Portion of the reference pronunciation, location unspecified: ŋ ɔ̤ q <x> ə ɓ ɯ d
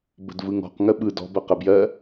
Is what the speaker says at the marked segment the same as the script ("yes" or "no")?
no